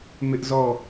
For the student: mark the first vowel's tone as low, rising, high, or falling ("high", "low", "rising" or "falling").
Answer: high